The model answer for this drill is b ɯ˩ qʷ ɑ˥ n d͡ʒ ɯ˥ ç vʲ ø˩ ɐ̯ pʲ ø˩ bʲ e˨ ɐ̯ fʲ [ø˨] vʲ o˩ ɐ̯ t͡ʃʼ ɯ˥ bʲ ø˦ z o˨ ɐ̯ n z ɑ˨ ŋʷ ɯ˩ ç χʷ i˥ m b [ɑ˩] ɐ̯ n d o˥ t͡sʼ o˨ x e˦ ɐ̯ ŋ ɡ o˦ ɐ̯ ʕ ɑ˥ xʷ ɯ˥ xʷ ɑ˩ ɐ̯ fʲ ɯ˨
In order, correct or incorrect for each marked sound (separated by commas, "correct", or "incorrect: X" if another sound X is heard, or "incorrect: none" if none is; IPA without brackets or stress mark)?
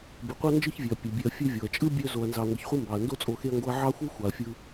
incorrect: ø˦, correct